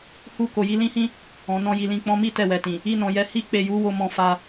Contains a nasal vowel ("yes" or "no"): yes